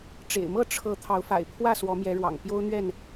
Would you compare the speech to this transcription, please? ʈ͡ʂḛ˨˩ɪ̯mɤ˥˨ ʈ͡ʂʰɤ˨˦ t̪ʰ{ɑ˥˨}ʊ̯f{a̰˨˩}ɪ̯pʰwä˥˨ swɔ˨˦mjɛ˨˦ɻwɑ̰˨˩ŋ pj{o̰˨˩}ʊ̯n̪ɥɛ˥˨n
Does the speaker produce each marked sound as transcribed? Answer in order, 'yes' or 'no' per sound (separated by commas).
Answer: no, yes, no